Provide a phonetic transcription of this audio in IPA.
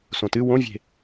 s õ t ɨ w õ vʲ e̤

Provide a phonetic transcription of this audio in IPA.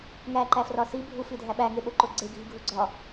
ŋ æ ǃ æ f r ɒ s i bʱ u f i dʱ æ ɓ æ ŋ e ɓ o ǃ o ɡ͡ǀ e ɡʱ i ɡʱ u ɡ͡ǀ ɒ

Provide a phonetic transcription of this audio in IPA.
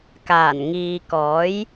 k aː˨˩ n ŋ iː˨ k ɔː˨˥ j

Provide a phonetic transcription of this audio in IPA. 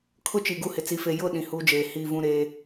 kʰ ʊ˦ t͡ʃ i˨ ɡ u˦˨ h ɪ˨ t͡s i˨ f e˨ j ʊ˦˨ ɗ ĩ˨ h uː˦ d͡ʒ eː˨ h i˦˨ v ũ˦ ɾ eː˦

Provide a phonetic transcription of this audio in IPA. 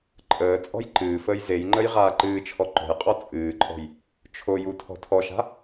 ǃʼ əː t͡sʼ ɔ̤ j ǃ ɨː f əː j z e j ŋ͡ǃ ə j ʁ aː ǃ ɨː t͡ʃʰ ɔ ǃ ɔ̤ j qʼ ɔ t͡sʼ ɨː ǃʼ ɔ̤ j | t͡ʃʰ o j u tʰ ɔ̤ tʰ ɔ ʃ a̤

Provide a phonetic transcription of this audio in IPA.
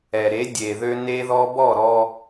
ɛ˨ ɾ e˨˦ dʲ e˨ ð ø˧ n e˦ ð ɔ˦ b ɔ˦˨ ɾ ɔ˧

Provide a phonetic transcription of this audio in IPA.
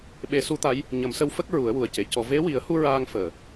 ɓ e˨˩˦ s u˧˥ t̪ a˧˥ j | ɲ ə˨˩˦ m s ə˧˥ w f ə˦˥ k̚ ɹ u˨˩˦ ə̯ w u˨˩ ə̯ c e˨˩˨ c ɔ˨˩˨ v e˧˥ w i˨˩˦ ə̯ h u˧ ɹ aː˧ ŋ f əː˨˩˨

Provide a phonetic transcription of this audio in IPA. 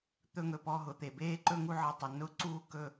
t̪ ɵ˦˨ ŋ ɵ˩ p ɔ˦˨ ɦ ʊ˩ t̪ e˩ b eː˦˨ ǃ ɵ˦˨ ŋ u˦˨ ʕ ɤ˩˧˩ tˤ ʊ˩ n ʊ˦˨ ǀ uː˦˨ k ɵ˦˨

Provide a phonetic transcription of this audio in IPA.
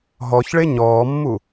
ɦ ɔ ç ɭ e ɲ ɔː mː u

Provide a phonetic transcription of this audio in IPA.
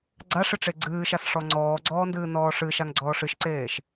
ɡ͡ǀ a ʂ ɨ ʈ͡ʂ e ɡ͡ǀ ɨː ʃ a s ʂ ɔ ŋ͡ǀ ɔː ɡ͡ǀ ɔː n d ɨː n ɔː ʂ ɨ ʃ a ŋ ɡ͡ǀ ɔː ʂ ɨ ʃ ǀ eː ʃ

